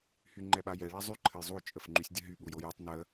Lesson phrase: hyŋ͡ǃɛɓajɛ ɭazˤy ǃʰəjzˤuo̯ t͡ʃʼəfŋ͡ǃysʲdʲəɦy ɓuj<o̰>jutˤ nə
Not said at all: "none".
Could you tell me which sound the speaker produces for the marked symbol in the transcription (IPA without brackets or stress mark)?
o